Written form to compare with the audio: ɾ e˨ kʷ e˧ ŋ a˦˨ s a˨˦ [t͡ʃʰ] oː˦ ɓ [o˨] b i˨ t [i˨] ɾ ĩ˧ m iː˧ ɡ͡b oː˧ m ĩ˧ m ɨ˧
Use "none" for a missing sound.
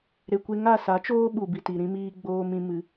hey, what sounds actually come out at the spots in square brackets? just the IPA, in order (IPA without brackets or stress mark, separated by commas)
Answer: t͡ʃ, u˨, i˨